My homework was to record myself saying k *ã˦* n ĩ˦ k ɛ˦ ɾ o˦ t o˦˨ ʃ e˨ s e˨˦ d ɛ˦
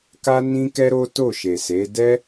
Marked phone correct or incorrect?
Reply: incorrect